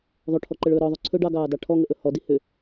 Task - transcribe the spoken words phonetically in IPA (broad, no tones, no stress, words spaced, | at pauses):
ðˤoʈʰɔǃəɭɵː ɾɔðˤɵ ǀʰɵɖ ɑɡɑːdɑ ʈʰɔŋəʔɵ hɔdi hʏ